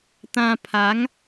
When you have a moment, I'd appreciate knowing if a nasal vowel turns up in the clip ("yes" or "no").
yes